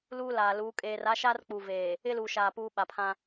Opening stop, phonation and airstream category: ejective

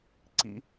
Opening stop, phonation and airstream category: click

